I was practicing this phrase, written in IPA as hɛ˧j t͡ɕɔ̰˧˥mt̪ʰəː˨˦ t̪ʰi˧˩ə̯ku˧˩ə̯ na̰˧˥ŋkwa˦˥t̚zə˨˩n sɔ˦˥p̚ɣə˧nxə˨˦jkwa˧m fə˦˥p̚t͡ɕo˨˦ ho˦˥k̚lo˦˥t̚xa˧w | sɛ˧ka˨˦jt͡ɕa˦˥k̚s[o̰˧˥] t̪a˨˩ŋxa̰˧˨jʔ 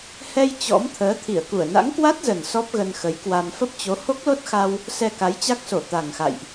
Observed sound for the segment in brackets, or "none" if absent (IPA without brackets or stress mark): o˧˩